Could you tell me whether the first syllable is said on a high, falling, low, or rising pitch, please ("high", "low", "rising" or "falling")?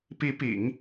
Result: rising